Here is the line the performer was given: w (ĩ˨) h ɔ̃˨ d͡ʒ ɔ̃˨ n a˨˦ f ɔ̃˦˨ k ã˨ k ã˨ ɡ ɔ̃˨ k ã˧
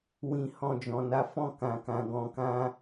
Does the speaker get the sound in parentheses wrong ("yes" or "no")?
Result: no